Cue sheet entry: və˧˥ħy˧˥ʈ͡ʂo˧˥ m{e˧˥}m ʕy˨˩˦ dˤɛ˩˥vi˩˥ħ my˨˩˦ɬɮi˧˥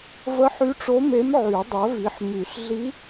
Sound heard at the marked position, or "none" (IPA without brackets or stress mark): e˧˥